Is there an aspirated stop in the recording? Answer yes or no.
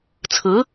yes